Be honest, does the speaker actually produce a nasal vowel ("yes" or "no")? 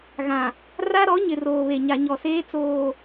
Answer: yes